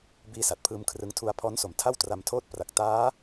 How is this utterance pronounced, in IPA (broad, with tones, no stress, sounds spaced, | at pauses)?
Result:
b iː˦˥ s a˨˩ t̚ pʰ ɯː˧ m kʰ r ɯ˦˥ ŋ tʰ u˧ a̯ pʰ ɔː˦˥ n s o˨˩ m tʰ a˥˩ w t r a˧ m tʰ oː˥˩ t̚ p r a˨˩ k̚ t aː˦˥